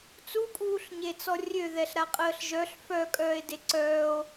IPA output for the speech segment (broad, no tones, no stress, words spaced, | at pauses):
t͡sukʼuːɬɲet͡sɔ rʲøðɛɬ ɾaqʼəːɬʒœɬ fœ kʼœːe̯deǀœːo̯